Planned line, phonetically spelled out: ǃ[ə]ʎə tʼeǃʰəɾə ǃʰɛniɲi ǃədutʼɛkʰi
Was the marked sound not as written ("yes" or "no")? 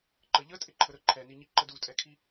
no